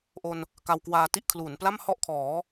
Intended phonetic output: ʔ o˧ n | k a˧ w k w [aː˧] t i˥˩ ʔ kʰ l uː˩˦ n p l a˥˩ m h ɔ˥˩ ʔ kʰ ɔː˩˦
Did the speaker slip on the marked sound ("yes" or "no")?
no